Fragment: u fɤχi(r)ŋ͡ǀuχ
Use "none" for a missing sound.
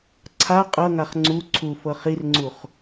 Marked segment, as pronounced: r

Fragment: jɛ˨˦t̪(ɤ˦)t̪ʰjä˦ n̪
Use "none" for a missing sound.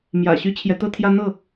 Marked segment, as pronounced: ɤ˦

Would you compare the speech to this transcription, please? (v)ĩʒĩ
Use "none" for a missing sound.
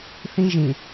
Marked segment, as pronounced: θ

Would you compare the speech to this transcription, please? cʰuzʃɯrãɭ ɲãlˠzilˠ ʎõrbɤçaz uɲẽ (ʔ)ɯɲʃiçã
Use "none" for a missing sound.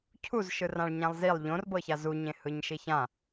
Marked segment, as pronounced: h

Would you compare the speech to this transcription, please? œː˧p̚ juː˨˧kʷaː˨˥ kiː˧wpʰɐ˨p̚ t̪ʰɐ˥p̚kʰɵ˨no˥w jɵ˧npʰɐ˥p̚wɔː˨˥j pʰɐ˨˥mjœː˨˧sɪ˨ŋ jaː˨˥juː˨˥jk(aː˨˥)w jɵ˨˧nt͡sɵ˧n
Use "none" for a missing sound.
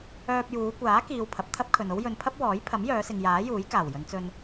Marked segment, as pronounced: aː˨˩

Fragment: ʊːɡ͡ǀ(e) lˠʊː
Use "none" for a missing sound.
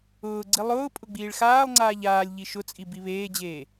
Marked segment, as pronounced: i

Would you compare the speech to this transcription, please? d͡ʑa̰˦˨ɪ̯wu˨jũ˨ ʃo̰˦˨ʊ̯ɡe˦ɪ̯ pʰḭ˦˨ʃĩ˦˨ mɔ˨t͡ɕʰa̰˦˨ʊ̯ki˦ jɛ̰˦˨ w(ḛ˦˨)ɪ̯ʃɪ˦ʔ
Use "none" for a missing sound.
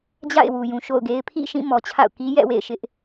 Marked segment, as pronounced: ḛ˦˨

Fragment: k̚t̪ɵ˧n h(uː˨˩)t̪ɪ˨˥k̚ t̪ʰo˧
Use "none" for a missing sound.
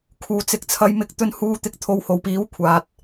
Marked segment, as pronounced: uː˧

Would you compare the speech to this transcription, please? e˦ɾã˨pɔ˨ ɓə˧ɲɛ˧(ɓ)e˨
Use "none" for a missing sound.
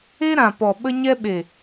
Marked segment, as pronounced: ɓ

